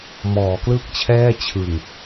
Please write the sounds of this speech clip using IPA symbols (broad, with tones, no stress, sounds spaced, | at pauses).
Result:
m ɔː˩˦ k l ɯ˥˩ k̚ t͡ɕʰ ɛː˥˩ t͡ɕʰ ɯ˨˩ ŋ